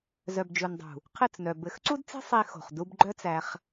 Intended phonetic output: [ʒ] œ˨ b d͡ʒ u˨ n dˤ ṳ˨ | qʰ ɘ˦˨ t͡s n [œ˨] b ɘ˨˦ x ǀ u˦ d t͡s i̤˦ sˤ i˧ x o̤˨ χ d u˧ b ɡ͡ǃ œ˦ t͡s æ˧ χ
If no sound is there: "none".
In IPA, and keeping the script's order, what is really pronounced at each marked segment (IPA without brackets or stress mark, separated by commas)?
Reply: z, œ˨